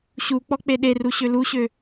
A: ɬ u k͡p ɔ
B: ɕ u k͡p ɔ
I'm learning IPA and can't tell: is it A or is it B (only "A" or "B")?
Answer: B